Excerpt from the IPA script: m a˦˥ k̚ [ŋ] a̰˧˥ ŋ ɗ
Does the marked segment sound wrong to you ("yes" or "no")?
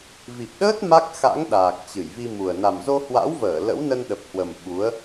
yes